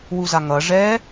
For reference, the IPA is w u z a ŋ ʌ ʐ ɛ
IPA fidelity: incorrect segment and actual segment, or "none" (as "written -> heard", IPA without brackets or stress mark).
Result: none